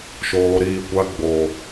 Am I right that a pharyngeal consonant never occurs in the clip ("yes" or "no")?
yes